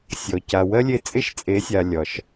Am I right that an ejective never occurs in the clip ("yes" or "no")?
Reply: no